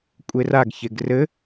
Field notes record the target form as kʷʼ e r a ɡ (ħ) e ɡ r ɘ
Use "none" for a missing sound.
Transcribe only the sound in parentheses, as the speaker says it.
ç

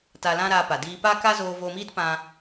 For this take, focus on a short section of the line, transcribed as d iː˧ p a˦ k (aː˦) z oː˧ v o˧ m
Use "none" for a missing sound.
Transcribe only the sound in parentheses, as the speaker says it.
a˦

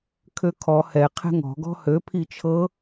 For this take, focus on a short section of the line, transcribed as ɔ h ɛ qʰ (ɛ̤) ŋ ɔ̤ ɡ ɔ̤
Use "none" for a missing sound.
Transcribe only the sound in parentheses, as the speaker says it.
ɛ̤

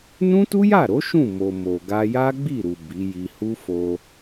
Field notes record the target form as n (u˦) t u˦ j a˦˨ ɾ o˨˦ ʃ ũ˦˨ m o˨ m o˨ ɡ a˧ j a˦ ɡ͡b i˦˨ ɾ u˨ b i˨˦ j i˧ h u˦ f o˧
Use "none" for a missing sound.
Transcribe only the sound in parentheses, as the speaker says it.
ũ˦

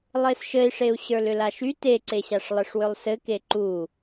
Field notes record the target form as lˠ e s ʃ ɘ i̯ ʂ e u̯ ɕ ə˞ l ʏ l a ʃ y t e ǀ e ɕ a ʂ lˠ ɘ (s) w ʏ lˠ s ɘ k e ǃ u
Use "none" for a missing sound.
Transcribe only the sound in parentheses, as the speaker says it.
ʂ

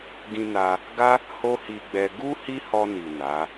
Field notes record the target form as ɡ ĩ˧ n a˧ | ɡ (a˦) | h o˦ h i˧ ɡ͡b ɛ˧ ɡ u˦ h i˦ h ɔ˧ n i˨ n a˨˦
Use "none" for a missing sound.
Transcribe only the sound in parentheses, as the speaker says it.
a˦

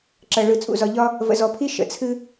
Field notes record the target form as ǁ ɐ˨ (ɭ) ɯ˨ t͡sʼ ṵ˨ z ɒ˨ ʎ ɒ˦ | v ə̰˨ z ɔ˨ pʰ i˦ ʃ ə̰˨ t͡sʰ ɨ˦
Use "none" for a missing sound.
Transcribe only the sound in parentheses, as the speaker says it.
ɭ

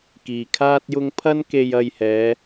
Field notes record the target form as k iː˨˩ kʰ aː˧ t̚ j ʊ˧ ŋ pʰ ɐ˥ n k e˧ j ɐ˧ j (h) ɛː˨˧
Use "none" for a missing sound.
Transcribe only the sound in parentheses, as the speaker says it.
h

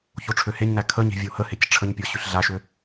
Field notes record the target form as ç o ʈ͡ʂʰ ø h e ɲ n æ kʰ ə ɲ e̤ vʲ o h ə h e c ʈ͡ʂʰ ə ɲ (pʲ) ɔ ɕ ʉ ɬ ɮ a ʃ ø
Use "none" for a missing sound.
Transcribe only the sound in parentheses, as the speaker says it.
pʲ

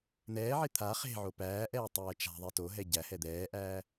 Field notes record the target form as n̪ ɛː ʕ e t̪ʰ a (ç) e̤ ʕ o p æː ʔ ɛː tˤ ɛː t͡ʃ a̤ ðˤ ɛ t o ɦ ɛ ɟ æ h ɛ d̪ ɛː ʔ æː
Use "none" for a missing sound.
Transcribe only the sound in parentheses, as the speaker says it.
χ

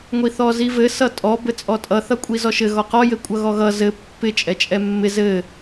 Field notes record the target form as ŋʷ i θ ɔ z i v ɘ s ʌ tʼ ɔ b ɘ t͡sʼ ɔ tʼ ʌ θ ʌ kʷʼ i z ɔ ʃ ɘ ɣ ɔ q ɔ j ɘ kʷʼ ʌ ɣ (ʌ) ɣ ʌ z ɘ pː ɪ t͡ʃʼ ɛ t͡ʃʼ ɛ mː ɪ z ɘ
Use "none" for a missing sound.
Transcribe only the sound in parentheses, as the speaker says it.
ɔ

